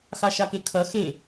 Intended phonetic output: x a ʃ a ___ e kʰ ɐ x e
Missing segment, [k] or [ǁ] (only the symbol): k